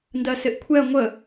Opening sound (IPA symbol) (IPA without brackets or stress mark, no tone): n